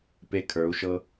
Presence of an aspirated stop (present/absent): present